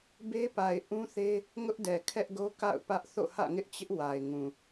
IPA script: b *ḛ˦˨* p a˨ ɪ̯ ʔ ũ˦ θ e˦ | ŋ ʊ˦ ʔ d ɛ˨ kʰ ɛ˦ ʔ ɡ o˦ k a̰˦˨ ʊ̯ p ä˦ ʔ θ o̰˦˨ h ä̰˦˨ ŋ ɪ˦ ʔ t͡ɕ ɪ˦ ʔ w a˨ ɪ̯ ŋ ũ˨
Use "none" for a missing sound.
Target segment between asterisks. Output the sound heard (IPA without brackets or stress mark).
e˦